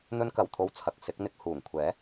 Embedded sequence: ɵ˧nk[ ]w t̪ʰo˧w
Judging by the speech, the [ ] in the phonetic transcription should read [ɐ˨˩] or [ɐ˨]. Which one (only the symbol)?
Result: ɐ˨˩